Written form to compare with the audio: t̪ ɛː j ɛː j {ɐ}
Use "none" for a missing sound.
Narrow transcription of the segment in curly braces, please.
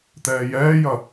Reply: ɐ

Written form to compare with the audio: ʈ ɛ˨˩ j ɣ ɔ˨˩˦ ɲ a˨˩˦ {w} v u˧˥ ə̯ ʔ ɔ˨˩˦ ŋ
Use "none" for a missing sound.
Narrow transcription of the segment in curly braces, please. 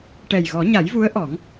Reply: j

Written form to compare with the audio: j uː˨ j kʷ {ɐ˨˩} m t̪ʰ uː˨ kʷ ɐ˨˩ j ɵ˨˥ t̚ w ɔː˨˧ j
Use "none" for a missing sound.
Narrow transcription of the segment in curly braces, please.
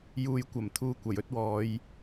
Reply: ɐ˨˩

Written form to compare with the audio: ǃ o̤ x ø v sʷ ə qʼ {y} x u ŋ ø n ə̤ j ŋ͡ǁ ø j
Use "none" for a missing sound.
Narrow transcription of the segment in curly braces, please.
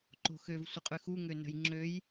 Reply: y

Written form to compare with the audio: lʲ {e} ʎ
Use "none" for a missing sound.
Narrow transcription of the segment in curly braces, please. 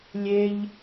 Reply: e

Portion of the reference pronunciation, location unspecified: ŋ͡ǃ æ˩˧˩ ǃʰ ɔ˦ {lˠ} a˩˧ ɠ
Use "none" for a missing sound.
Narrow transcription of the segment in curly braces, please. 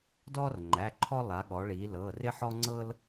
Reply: lˠ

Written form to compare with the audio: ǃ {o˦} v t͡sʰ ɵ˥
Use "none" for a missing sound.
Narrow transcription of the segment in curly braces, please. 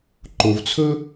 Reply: o˨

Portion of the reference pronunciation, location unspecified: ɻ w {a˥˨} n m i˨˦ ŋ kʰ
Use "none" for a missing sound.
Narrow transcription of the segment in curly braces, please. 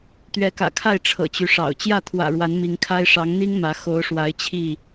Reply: a˨˦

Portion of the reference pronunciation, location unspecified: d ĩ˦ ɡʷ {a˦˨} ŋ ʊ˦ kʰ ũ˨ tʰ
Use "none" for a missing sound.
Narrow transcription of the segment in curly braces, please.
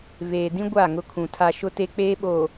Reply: a˦˨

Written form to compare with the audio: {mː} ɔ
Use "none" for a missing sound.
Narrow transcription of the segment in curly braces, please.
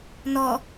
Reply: n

